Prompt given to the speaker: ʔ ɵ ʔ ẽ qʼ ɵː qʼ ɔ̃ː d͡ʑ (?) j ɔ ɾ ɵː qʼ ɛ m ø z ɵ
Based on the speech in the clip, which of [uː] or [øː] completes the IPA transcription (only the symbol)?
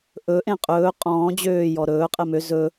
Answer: øː